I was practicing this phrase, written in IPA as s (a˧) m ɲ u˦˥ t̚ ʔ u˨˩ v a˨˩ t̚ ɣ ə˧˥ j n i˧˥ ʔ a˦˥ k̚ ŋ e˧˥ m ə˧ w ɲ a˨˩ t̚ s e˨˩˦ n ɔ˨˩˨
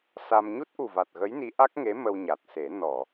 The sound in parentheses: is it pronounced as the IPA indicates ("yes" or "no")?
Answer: yes